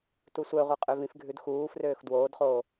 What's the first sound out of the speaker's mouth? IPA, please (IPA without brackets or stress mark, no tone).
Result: t